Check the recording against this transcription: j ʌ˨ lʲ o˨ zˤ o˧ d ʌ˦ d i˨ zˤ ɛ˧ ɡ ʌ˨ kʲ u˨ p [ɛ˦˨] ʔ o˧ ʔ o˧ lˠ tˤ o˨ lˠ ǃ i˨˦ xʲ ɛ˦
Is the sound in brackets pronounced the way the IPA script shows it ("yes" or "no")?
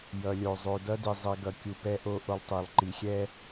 no